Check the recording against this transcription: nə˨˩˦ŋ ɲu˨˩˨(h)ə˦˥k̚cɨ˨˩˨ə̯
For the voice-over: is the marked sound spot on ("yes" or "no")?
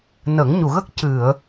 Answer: no